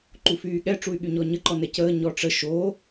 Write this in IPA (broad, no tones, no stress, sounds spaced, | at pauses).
ǃ u f yː ɠ ɛ ʈ͡ʂ u y̯ ɠ y ɲ ɔ ɲ ə ǃ ɔ n ɛ c əː ɲ ɔ ʈ͡ʂ ə ʃ o